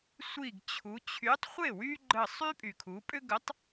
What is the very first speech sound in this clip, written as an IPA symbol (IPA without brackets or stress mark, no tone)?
sʷ